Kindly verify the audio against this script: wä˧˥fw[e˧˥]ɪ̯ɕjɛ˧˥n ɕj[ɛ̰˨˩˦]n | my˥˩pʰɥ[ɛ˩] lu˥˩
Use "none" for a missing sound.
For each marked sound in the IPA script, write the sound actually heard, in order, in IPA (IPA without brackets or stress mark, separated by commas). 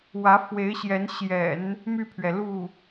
e˧˥, ɛ̰˨˩˦, ɛ˩